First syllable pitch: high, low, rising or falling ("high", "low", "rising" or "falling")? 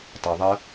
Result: low